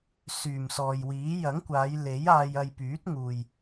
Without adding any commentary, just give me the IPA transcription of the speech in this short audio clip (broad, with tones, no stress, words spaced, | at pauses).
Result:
syː˨˩msɔː˨jwiː˨˥ jɐ˨˥ŋkʷaː˨˧j le˨˥jaː˧jɐ˧j pyː˨˥t̚ŋuː˨j